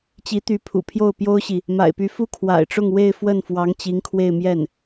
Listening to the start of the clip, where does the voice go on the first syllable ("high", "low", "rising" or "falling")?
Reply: rising